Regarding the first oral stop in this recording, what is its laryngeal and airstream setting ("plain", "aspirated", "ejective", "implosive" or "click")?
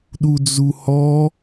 implosive